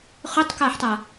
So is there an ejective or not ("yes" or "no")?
no